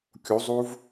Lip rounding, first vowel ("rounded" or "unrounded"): rounded